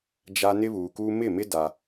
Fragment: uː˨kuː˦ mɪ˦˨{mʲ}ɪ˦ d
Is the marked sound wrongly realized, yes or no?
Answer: yes